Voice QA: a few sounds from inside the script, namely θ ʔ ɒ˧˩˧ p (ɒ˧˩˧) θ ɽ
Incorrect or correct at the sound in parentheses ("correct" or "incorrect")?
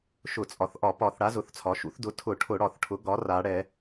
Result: correct